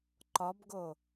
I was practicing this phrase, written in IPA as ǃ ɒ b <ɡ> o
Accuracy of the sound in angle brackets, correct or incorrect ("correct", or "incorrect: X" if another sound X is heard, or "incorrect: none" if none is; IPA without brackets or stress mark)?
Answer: correct